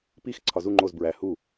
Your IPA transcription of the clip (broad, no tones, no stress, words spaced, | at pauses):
pix ǀʰɒzu ŋ͡ǃoz bɹæ hu